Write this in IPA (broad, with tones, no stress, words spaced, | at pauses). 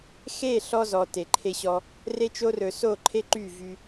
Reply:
xe˦˨ɬɔ˧ zɔ˨ te˨ǃʰe˧ɕɔ˧ | re˦t͡ʃo˦ rɵ˧ so˦˨ǃʰe˦ ǃy˦˨vy˧